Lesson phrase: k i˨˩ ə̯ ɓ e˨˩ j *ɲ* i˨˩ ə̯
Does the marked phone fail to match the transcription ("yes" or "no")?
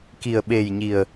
no